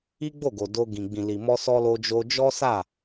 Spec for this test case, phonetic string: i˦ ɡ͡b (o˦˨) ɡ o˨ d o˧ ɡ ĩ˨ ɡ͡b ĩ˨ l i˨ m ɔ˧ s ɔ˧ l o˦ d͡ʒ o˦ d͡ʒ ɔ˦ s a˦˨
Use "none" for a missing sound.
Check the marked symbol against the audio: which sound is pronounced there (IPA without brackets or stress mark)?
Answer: o˦˨